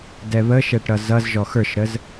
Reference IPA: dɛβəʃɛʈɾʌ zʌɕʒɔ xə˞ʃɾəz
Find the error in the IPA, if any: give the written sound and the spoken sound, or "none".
ɕ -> z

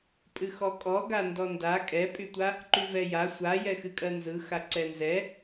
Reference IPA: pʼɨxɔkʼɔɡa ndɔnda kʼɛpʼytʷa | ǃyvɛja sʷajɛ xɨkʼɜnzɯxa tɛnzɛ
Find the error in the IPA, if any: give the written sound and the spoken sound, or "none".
t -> ǀ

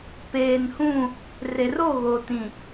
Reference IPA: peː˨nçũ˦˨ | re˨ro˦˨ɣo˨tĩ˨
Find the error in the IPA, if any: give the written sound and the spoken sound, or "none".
ç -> h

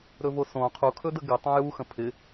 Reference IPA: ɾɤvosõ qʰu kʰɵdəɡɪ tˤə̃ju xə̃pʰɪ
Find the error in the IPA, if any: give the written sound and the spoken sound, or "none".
ɤ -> ɵ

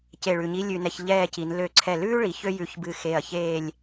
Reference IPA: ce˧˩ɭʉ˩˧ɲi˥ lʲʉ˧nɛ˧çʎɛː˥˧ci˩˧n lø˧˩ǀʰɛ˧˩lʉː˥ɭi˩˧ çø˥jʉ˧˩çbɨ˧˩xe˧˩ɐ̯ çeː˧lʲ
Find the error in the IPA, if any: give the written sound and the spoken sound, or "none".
eː˧ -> eː˥˧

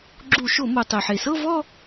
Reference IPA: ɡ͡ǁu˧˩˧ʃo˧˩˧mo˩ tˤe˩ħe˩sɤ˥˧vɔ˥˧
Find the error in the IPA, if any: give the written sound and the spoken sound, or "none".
none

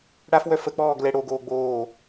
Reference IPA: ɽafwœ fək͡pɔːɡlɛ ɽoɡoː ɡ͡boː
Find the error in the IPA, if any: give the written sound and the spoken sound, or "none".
none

